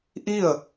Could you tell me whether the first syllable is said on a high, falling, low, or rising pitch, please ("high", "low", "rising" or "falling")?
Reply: falling